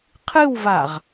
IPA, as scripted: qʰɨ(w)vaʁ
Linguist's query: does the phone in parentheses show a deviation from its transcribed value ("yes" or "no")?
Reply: no